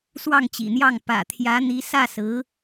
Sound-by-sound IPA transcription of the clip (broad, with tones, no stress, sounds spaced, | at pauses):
s w ɑ˥˩ ŋ t͡ɕ ḭ˨˩ n̪ j ɑ˥˩ ŋ p ä̰˨˩ t̪ʰ j ä˧˥ n̪ i˧˥ s ä˥˩ s ɹ̩˧˥